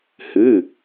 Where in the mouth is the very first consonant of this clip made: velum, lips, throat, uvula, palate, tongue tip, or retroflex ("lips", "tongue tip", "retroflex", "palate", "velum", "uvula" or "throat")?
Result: throat